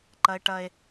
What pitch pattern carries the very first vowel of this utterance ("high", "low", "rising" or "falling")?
high